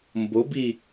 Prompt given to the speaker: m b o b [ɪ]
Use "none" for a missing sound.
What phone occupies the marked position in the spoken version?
i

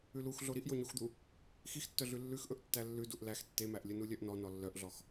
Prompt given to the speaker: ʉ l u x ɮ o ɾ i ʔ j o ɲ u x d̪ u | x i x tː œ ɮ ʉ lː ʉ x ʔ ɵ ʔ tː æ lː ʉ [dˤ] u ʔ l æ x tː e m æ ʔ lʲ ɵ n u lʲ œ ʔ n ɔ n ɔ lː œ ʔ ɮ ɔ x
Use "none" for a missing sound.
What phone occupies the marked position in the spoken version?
d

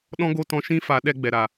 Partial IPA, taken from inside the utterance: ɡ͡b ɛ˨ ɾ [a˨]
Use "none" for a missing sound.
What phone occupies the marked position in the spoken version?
a˨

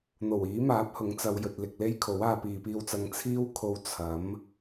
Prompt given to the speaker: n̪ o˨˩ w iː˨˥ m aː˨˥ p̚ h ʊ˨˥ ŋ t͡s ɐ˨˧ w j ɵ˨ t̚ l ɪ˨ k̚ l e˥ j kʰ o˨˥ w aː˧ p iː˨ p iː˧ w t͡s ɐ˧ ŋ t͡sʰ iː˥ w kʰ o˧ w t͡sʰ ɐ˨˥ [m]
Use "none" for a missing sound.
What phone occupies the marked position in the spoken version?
m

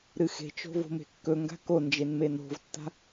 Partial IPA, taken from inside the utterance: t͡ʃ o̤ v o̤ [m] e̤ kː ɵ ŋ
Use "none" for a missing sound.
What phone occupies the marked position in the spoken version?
m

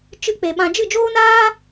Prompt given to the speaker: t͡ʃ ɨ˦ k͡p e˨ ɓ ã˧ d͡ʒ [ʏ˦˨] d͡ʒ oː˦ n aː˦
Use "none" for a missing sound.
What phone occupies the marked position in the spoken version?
ɨ˦˨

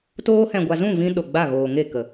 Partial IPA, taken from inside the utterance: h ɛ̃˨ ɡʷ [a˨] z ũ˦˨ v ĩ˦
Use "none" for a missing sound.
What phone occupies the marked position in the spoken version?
a˨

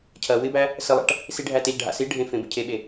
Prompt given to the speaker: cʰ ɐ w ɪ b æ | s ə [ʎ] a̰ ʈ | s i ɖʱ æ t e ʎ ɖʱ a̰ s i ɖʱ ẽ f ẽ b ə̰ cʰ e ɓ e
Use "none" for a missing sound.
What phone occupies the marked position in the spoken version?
lˠ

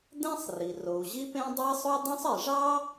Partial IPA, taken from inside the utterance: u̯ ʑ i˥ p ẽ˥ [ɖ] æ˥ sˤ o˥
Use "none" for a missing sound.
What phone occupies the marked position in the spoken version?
dˤ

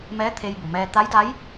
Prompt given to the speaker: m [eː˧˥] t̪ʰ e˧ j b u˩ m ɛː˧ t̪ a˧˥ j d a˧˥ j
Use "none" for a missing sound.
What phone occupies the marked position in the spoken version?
ɛː˧˥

